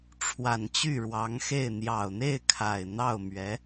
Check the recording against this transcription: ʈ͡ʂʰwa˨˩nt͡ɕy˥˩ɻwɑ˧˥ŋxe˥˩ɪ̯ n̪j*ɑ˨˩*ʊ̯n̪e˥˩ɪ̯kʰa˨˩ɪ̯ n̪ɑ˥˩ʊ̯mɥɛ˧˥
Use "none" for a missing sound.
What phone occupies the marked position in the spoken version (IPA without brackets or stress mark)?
ɑ˨˩